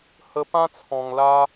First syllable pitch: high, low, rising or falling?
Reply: high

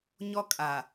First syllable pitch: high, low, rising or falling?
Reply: high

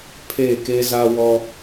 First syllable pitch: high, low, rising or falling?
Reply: falling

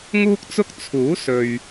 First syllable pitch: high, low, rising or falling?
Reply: high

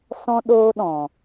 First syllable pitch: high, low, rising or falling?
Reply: high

